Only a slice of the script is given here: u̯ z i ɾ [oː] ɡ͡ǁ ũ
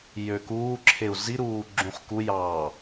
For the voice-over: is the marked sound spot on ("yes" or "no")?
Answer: no